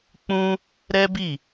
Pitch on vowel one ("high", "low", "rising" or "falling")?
high